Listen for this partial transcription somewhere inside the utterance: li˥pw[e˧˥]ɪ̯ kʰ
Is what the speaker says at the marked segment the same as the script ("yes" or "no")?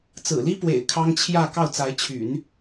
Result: no